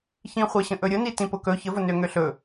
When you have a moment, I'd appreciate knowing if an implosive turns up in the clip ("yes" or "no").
no